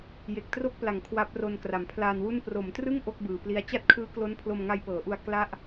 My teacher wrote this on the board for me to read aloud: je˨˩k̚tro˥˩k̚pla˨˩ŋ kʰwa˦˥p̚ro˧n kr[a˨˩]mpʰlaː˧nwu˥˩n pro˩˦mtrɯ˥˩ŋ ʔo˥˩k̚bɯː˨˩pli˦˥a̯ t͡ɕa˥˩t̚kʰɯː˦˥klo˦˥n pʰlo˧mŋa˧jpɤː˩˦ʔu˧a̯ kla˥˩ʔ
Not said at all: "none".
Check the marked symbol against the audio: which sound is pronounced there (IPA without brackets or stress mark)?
a˨˩